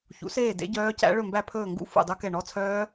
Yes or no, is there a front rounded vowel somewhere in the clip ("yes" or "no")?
yes